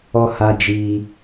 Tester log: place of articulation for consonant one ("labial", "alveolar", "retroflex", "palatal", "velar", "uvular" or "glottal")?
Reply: glottal